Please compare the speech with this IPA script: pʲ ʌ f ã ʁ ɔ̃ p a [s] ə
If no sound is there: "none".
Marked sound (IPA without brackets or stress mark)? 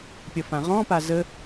z